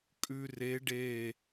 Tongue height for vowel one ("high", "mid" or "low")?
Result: high